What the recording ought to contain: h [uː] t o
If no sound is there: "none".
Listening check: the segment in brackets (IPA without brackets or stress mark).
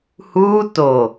uː